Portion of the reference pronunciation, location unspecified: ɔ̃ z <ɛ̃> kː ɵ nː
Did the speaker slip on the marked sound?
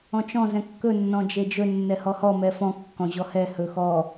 no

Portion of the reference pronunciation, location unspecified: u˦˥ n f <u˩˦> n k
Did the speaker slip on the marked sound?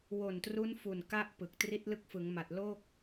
yes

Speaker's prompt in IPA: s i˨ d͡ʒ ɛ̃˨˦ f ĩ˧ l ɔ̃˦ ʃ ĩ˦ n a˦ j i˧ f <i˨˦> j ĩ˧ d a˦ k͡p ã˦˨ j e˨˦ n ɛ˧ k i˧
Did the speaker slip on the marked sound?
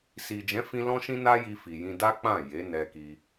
yes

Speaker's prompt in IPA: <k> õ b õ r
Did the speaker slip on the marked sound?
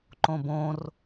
yes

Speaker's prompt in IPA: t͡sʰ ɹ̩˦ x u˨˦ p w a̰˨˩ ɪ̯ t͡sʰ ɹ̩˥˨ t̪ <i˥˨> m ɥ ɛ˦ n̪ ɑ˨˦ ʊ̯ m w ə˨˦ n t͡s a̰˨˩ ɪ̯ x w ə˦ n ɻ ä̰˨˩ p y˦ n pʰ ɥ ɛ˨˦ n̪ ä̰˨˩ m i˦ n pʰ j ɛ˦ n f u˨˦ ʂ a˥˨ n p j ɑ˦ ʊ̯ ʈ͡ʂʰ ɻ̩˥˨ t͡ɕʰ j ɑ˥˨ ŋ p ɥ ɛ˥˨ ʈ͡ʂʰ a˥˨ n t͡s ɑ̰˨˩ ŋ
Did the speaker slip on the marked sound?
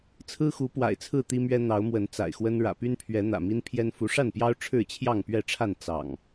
yes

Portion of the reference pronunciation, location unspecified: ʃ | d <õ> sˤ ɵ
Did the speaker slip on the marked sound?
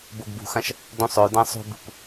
no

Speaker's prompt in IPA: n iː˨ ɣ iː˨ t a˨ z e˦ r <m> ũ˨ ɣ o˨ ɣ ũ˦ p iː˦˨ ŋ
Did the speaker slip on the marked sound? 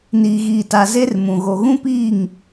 no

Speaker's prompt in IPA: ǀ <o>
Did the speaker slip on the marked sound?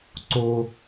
no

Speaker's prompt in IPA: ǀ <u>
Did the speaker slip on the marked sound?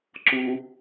no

